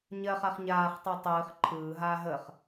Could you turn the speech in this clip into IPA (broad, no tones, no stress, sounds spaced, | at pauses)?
ɲ ɜ χ a χ ɲ aː χ tˤ ɜ tˤ ɯː χ ǃʰ ɯː ɦ aː ɦ ə χ